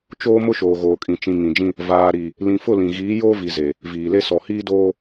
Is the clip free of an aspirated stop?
yes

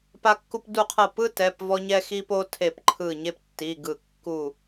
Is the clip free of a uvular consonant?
no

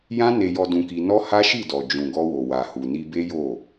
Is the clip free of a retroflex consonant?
yes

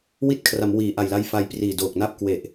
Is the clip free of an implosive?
yes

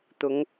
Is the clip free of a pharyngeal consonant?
yes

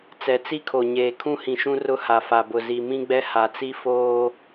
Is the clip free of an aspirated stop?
no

